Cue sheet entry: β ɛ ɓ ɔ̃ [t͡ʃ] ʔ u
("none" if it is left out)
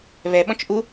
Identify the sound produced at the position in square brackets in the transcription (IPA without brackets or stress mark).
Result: t͡ʃ